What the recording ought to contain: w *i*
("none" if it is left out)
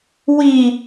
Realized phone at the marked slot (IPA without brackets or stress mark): i